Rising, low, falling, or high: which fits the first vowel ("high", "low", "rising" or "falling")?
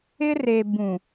high